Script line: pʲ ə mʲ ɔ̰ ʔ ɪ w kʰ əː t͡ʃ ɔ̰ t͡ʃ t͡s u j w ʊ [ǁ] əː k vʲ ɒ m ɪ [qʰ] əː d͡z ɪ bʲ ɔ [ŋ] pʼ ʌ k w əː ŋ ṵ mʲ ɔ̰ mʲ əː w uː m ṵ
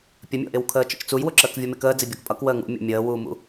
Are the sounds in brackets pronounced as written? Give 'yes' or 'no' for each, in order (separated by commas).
yes, no, no